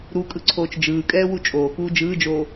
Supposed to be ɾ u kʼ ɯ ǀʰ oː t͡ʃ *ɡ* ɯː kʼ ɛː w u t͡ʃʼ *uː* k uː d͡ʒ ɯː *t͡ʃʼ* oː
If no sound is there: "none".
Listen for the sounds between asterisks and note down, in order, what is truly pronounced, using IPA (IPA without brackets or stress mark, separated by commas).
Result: d͡ʒ, oː, d͡ʒ